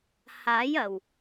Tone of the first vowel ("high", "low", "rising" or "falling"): rising